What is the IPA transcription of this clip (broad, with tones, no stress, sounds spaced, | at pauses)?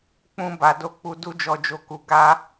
k͡p ũ˦ b a˧ d o˦ k͡p u˧ d u˦ d͡ʒ ɔ˧ d͡ʒ o˧ k u˧ ɡ a˦